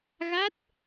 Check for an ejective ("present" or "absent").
absent